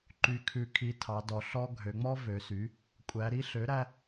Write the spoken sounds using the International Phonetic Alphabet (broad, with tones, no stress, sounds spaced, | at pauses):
ǃ y˩˥ kʰ ʉ˩˧ kʰ i˩˥ tʰ ɑ˩˧ d ɔ˩˧ ɬ ɔ˦ ɡʱ ø˩˧ ŋ͡m ɔ˦ v ø˩˧ s y˩˥ | kʷʼ æ˩˧ ɾ i˦ ɬ ø˩˥ ɾ æ˦